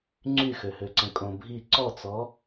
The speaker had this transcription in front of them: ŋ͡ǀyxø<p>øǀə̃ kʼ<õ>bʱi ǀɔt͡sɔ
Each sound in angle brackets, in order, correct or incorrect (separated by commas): incorrect, correct